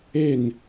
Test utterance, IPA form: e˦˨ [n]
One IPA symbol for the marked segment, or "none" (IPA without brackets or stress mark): n